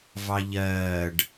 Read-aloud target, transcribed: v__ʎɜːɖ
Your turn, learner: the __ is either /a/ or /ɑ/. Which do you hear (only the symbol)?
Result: ɑ